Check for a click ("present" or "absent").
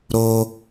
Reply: absent